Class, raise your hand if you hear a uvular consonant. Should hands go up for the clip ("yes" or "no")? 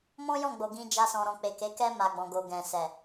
no